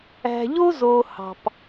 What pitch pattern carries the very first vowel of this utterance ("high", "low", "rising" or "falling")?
low